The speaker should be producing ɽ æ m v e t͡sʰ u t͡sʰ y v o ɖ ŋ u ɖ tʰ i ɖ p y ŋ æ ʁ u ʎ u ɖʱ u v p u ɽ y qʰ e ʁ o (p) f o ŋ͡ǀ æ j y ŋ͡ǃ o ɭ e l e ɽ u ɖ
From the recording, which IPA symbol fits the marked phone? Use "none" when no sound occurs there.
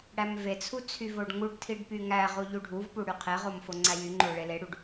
m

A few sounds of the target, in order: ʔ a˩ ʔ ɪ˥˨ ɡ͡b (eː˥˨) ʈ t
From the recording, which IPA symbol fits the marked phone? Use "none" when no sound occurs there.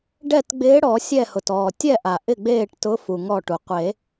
eː˥˨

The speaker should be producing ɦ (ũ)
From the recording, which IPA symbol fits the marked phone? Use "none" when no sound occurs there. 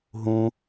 ũ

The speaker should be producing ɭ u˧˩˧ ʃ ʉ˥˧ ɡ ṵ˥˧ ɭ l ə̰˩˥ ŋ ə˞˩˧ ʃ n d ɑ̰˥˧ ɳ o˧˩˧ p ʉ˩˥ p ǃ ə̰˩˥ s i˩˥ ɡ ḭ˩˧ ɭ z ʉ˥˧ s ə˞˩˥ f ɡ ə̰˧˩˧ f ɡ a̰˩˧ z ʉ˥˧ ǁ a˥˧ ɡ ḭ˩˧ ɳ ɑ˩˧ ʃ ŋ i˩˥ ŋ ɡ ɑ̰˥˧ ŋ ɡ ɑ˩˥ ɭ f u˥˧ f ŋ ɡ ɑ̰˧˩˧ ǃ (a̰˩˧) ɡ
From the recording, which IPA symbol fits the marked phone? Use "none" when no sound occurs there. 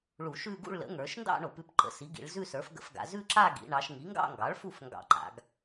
a̰˩˧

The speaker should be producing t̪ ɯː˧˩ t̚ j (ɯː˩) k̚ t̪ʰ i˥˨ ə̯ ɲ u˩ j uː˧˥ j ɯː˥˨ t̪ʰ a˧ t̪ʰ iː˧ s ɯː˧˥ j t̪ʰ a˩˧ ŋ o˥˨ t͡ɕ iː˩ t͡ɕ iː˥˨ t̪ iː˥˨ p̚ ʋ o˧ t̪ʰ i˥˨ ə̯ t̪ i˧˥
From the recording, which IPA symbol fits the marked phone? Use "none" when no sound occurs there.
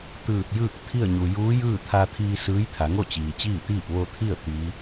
ɯː˥˨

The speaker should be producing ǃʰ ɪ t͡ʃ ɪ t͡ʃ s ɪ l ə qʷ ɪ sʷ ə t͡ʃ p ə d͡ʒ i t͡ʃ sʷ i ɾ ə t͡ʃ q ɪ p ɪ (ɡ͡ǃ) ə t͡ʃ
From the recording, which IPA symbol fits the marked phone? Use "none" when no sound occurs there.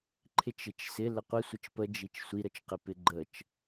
ɡ͡ǃ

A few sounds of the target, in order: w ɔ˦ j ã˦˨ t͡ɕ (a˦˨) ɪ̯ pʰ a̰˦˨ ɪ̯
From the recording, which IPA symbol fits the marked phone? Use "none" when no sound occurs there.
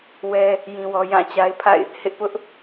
a˦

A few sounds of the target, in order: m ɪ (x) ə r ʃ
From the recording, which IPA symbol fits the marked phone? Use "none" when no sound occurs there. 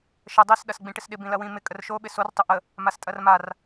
kʼ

